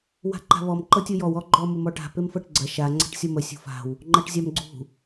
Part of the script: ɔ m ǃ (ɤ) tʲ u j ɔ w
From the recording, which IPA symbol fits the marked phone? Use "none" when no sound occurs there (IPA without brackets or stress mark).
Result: ɤ